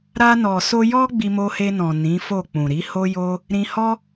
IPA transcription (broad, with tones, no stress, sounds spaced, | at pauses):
ɾ a˧ n ɔ˨ s o˧ j ɔ˦ ɡ͡b i˧ m o˧ h e˧ n ɔ̃˨ n ĩ˨˦ f o˦˨ k͡p ũ˨ ɾ i˨˦ h o˦ j o˦ | ɾ ĩ˧ h ɔ˦